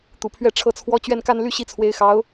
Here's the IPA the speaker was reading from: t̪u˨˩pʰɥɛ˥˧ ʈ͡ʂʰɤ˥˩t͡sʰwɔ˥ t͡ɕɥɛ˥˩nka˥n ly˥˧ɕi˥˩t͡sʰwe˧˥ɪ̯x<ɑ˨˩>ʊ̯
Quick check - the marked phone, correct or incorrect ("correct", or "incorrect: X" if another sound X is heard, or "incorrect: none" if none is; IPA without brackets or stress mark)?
incorrect: ɑ˧˥